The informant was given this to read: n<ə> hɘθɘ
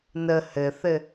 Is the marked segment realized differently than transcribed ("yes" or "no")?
no